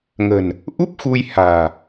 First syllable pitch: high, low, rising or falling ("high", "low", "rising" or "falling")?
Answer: low